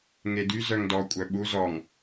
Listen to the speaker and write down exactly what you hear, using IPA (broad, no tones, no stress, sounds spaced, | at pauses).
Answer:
ŋ e d y z œ ŋ d ɔ kʷʼ œ ɓ u z ɔ ŋ